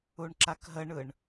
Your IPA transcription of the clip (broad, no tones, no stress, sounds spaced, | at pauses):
u ɳ ǁ a k ɦ ə ɳ ɯ ɳ